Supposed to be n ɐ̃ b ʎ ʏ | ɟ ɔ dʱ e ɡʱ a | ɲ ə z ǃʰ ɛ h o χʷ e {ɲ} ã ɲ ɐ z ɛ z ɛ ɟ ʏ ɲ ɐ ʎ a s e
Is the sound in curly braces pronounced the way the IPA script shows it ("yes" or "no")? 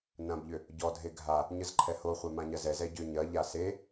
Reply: no